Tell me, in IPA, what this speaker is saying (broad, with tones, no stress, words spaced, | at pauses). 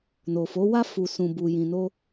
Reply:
no˨fo˨˦wa˦ fu˧sũ˧ bu˨ jĩ˨no˧